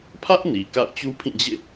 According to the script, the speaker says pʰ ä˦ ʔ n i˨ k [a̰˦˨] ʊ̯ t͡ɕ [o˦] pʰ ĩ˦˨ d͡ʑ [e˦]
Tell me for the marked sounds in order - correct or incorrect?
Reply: correct, incorrect: u˦, incorrect: ḛ˦˨

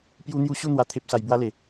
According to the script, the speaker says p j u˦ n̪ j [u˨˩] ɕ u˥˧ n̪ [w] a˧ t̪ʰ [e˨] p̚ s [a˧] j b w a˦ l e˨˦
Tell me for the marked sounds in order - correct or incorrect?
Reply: incorrect: u˦, correct, incorrect: e˦, correct

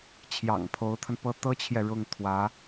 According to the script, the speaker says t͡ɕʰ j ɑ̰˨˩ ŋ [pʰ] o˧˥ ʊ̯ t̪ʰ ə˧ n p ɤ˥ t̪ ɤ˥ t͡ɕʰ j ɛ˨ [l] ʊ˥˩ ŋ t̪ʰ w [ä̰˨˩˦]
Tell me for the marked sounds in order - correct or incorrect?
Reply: correct, incorrect: ɻ, incorrect: ä˧˥

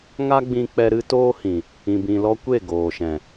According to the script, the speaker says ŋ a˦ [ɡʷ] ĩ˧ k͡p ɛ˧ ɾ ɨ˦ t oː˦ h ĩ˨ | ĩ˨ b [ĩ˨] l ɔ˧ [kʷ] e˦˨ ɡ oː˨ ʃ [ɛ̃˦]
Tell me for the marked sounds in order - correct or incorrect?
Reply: incorrect: ɡ͡b, correct, correct, incorrect: ɛ̃˨

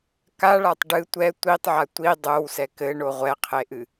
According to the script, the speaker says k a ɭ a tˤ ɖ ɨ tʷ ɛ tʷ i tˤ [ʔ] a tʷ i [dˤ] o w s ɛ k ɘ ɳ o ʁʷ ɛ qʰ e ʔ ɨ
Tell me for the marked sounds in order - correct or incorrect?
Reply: incorrect: ʕ, correct

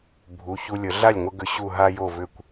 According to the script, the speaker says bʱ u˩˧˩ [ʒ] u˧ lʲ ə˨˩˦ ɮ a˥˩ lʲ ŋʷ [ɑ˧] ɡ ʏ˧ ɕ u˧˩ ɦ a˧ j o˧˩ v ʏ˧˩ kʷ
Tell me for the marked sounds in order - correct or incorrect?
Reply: incorrect: ç, incorrect: ə˧

